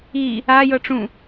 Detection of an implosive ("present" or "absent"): absent